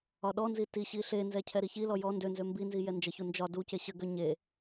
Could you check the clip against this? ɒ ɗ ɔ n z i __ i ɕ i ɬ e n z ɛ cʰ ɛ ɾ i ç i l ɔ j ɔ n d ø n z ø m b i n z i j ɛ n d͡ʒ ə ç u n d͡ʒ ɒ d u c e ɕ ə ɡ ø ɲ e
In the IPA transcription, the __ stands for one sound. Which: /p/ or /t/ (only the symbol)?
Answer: t